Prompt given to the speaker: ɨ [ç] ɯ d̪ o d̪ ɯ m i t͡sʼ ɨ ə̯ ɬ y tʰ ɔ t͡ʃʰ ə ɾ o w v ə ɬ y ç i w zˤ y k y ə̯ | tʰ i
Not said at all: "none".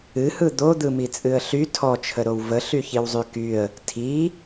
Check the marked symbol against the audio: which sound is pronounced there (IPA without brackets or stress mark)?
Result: h